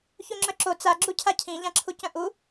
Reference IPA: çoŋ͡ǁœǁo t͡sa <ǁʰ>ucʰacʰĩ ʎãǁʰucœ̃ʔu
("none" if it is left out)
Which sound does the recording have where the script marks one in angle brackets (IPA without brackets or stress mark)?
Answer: ɡ͡ǁ